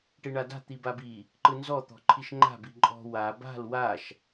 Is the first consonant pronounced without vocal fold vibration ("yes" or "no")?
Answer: yes